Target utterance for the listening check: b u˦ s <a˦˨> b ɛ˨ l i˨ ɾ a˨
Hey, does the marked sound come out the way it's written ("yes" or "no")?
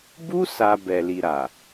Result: no